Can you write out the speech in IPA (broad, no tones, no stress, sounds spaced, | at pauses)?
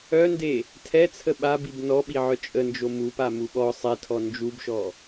œ n d e | tʰ ɛ t͡sʰ ə ɓ a b i b n ɔ ɓ i ʕ œ t͡ʃʼ ə n d͡ʒ o m u p a m u ɓ ɔ sˤ ɛ tʰ ɔ n d͡ʒ u b ʃ ɔ